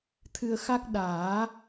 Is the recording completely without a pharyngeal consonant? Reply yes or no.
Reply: yes